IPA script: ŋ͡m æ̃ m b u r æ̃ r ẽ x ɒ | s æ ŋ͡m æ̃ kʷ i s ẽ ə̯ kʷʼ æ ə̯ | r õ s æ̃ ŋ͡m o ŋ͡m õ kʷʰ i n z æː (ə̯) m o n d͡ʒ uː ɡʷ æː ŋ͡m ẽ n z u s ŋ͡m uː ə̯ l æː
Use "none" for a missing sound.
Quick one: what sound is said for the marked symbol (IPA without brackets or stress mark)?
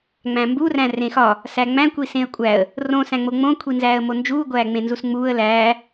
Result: ə̯